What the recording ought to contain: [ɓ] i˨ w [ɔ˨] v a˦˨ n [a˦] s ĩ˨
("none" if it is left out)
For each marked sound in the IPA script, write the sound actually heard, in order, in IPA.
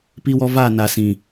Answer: p, ɔ˨, a˨

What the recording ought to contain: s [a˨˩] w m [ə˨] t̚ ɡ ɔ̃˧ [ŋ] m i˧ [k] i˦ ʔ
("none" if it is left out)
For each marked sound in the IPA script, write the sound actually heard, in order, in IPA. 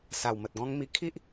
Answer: a˨˩, ə˨, ŋ, kʰ

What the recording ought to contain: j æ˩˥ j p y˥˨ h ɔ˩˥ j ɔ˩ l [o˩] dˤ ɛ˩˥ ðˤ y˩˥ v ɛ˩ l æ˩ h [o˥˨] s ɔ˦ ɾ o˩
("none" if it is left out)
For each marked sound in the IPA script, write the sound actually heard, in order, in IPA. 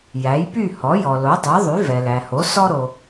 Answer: o˩˥, o˩˥

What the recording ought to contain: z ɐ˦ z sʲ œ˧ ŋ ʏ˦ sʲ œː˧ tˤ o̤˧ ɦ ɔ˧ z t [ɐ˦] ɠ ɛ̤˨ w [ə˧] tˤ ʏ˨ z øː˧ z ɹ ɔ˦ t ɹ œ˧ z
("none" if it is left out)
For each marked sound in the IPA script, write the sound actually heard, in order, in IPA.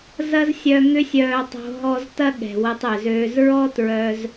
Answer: ɐ˦, ə˧

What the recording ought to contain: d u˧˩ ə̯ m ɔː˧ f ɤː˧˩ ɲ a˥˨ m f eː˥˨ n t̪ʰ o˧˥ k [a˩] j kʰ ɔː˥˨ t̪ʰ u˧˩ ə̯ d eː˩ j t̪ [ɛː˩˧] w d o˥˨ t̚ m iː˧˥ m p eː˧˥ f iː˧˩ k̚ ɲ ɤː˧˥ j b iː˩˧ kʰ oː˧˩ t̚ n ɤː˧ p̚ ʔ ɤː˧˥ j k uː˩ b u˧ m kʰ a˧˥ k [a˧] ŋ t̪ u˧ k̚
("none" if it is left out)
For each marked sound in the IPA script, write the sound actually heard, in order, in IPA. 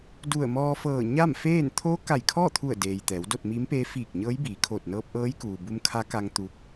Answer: a˧˩, ɛː˩˧, a˧

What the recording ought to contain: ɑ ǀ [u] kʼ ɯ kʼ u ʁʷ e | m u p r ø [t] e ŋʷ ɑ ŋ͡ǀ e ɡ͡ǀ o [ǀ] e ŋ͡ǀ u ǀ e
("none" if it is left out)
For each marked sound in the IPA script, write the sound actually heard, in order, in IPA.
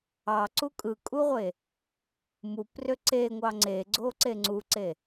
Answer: u, ǀ, ǀ

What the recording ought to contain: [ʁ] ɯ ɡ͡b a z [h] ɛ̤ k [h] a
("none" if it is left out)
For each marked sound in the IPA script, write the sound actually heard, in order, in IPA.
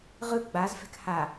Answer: ʁ, f, h

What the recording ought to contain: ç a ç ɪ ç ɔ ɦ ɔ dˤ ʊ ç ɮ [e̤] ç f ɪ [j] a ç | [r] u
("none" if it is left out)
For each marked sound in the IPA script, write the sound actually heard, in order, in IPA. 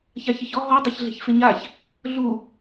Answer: e̤, ɲ, ɮ

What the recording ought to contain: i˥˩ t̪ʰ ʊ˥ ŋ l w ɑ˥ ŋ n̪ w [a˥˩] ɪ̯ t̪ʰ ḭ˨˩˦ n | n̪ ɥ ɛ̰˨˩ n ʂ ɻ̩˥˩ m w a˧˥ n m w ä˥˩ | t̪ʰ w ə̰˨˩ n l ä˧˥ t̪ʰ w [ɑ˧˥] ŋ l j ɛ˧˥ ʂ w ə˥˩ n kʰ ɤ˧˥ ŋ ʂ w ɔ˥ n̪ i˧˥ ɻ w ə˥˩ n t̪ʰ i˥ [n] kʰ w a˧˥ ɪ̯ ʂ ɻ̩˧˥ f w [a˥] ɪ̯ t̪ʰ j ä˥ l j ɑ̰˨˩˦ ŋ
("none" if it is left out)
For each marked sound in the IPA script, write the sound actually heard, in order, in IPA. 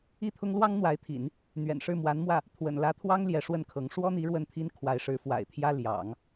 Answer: a˧˥, ɑ˥, n, a̰˨˩

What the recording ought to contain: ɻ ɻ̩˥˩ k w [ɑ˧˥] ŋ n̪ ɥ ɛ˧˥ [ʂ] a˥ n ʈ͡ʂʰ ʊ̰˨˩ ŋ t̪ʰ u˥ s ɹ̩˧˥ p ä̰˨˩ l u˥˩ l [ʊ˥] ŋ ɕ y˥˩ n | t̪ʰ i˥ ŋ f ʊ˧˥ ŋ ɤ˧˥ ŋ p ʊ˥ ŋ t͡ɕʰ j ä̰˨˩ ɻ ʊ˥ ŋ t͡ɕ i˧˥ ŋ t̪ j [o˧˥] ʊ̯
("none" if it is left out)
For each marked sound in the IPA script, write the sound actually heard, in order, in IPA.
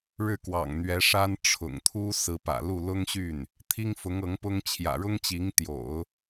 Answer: ɑ̰˨˩, ʂ, ʊ˥, o̰˨˩˦

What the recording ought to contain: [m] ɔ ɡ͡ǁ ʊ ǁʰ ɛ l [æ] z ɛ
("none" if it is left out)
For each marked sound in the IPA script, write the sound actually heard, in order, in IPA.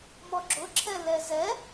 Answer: m, ɛ

